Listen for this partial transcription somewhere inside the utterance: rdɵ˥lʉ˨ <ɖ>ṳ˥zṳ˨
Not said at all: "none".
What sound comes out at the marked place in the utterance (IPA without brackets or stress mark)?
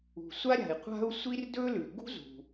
ɡ